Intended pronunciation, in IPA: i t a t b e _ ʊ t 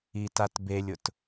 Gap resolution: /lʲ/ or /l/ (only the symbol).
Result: lʲ